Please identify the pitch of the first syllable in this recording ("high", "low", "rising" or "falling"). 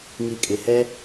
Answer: low